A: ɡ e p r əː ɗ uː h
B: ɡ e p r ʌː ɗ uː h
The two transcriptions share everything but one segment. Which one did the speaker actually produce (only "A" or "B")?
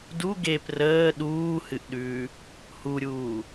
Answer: A